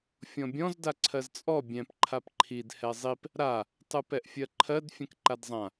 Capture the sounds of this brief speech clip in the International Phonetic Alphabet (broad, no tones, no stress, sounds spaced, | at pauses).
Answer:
fʲ ɔ̃ bʲ ɔ̃ z d a ǀʰ ɜ z t͡sʼ ɔ bʲ ɛ̃ p ǃʰ a p ǃʰ i d h ɛ zˤ i p | ɾ a | tˤ ɯ p ɛ ʔ fʲ ɜ ǃʰ ɜ d fʲ ɛ̃ k ǃ a d zˤ ã